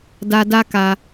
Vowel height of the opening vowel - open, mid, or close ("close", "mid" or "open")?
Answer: open